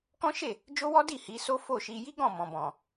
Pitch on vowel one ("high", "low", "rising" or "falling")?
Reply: high